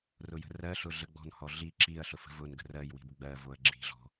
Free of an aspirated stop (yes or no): yes